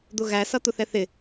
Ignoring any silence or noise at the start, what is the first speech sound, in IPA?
d̪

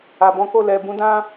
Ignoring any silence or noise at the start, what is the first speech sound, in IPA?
a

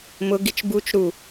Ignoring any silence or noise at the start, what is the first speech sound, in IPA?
m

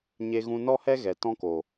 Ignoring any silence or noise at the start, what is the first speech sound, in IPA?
ɲ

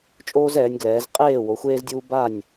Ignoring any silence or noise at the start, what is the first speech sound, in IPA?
t͡ʃʼ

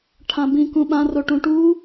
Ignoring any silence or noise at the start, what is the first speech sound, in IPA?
ʈʰ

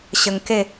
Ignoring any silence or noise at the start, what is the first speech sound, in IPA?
ɕ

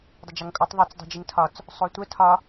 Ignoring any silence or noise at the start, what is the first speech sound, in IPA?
dˤ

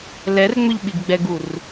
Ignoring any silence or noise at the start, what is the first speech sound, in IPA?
l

